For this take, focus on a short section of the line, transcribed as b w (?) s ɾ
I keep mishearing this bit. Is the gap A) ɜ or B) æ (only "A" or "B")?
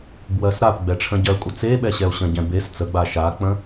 A